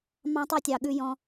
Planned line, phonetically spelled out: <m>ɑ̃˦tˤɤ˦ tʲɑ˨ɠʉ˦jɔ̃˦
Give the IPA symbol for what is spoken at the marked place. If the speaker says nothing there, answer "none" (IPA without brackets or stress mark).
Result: m